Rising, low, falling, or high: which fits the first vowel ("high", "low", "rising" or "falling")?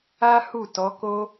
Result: high